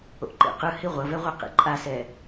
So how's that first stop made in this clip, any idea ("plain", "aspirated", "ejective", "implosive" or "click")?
click